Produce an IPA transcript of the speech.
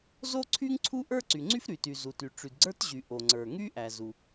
zo˥ǀʰy˥ŋǀʰu˥ ʔə˞˥ǀy˩ŋ͡ǀy˥f ɾy˩ty˩ zu˩ty˩ ʈ͡ʂy˩dɡ͡ǀə˞˥tʑy˩ ʔo˩ŋ͡ǀə˞˩ŋy˥ ʔæ˩zu˩

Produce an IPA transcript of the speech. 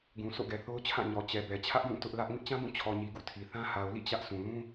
ɡũ˨ so̰˦˨ɡɛ˨θo˦ʊ̯t͡ɕʰã˦˨ ɲɔ˨ t͡ɕɛ˨bɛ˨ t͡ɕʰä˦ʔjũ˦˨ tʊ˦ʔlä˦ʔ ŋɪ˦ʔt͡ɕã˦bũ˦˨ t͡ɕʰɔ˨ɲi˨ ɡṵ˦˨tʰi˨θã˦ ha˨ʊ̯lḭ˦˨ t͡ɕä˦ʔsũ˨ lũ˦

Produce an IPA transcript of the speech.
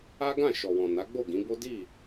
a˦ɡã˦˨ ʃɔ˨wɔ̃˨ na˨˦ɡ͡bo˦˨ɡĩ˨˦bo˦ di˦˨

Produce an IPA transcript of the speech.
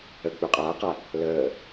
ə k͡pøqʼaːqa | ləː

